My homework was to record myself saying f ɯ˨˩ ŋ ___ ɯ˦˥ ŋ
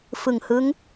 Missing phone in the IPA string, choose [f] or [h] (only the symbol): h